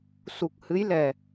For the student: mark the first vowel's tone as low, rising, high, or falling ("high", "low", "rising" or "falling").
low